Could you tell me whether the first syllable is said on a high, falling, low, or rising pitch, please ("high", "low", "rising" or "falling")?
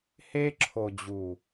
high